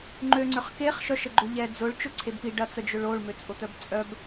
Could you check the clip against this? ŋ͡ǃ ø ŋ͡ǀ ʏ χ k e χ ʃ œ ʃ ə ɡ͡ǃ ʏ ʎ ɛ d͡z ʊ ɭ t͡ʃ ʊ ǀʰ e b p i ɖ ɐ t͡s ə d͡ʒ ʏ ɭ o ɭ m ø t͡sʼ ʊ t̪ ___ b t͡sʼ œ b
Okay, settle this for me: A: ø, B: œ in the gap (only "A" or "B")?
B